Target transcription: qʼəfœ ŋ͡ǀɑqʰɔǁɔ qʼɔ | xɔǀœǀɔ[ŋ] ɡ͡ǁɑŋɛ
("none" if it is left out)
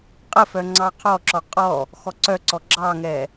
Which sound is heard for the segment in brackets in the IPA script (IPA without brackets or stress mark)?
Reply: none